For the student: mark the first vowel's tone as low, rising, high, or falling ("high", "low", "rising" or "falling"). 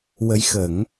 rising